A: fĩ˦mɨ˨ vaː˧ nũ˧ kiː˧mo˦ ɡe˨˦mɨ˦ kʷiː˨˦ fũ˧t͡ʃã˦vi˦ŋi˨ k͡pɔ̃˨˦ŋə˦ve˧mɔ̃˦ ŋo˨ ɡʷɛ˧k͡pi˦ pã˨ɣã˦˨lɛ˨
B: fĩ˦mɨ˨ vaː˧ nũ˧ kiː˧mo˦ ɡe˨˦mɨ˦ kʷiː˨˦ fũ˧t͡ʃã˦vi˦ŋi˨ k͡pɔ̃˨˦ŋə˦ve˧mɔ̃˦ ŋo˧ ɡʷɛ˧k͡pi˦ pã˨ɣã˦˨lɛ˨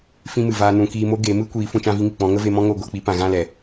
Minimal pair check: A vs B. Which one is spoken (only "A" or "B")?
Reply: B